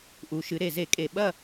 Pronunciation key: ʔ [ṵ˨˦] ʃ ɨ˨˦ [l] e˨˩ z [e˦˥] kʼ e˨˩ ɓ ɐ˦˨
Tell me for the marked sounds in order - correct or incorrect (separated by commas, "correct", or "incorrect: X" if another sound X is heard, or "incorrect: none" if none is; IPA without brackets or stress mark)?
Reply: incorrect: u˨˦, incorrect: ɾ, incorrect: e˧˩˧